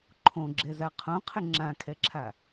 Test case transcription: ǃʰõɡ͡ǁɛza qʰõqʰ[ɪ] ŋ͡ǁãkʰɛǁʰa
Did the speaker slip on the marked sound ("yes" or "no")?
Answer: no